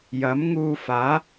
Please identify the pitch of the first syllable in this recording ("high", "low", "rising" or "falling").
rising